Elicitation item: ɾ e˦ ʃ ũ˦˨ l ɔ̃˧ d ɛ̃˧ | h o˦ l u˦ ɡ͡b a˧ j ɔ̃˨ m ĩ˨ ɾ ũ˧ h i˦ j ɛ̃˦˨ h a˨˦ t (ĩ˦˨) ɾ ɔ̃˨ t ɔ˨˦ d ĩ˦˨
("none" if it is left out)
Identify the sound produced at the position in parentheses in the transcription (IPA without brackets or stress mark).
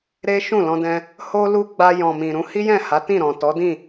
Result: ĩ˦˨